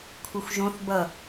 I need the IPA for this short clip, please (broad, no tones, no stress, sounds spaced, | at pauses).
kʷʰ ɯ xʷ ʒ õ θ b ʌ